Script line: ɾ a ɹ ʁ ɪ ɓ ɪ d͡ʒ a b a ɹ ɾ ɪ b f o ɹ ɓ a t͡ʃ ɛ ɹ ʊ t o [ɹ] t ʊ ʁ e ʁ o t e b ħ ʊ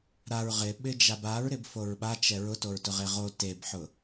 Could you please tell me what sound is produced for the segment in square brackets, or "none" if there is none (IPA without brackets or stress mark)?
ɹ